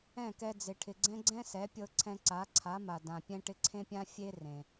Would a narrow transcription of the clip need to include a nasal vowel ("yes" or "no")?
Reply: yes